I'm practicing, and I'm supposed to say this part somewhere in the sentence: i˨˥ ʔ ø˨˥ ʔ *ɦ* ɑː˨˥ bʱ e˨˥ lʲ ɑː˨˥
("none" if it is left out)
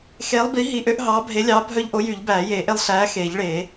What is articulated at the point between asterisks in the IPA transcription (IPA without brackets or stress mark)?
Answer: ɦ